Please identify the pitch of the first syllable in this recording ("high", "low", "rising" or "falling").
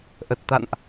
low